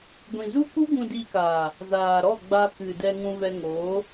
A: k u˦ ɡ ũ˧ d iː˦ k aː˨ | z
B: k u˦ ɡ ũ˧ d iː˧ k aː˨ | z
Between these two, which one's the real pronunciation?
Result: B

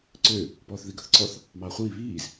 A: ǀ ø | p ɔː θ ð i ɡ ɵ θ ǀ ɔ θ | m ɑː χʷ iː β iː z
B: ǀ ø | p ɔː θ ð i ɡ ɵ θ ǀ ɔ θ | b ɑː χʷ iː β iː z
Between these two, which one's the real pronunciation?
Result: A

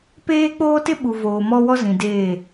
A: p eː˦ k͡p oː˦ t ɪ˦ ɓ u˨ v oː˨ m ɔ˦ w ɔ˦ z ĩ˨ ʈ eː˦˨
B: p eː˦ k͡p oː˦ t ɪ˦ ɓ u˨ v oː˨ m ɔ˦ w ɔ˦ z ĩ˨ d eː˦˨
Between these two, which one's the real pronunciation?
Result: B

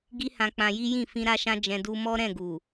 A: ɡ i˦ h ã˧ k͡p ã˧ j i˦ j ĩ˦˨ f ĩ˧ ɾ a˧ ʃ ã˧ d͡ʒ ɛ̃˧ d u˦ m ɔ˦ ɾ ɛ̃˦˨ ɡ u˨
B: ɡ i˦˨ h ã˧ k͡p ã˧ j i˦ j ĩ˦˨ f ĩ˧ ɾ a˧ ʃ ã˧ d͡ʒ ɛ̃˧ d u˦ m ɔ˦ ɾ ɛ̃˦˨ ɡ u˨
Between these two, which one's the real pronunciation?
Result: A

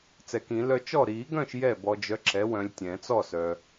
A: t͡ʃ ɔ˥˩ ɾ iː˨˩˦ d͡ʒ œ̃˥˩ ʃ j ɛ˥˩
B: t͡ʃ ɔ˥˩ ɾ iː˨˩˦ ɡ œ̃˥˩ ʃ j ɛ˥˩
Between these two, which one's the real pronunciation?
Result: B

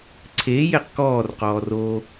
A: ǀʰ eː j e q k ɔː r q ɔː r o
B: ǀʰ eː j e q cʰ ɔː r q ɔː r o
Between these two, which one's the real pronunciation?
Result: A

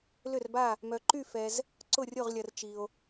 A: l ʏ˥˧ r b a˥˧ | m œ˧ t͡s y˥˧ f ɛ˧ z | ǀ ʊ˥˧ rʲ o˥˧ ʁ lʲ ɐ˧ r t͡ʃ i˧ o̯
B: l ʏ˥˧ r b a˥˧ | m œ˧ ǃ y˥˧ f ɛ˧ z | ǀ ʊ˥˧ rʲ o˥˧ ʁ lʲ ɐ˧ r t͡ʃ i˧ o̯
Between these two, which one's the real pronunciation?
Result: B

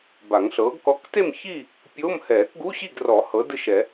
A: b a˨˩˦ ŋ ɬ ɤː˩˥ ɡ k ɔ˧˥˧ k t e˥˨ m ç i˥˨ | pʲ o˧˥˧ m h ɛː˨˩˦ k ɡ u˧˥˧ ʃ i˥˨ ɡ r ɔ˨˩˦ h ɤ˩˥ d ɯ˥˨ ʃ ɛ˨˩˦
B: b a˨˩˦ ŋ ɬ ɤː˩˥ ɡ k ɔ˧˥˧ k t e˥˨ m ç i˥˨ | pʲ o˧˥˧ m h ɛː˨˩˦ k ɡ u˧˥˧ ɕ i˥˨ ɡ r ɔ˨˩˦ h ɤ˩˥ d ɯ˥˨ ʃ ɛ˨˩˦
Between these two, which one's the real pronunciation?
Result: B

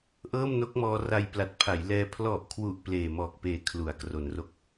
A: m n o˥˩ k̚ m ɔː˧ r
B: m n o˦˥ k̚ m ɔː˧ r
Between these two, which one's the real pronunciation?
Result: B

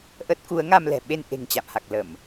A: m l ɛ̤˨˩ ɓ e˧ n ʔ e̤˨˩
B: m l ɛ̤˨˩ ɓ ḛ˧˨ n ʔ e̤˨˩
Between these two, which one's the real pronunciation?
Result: A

